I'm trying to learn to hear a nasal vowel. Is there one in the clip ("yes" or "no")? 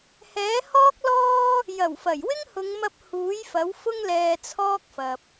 no